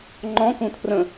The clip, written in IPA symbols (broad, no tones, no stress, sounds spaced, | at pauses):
ŋ͡ǃ ɔ̃ k ũ tʰ r ə̃